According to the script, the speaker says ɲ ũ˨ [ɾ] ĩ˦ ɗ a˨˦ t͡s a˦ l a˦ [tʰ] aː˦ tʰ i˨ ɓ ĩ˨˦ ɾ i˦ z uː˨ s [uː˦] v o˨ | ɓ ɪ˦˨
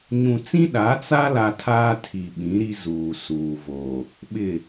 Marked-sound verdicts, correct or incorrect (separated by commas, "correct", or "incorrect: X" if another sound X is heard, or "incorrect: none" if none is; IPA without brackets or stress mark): incorrect: t͡s, correct, incorrect: uː˨